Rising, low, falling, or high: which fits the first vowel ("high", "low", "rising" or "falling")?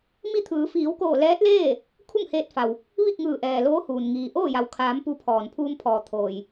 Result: falling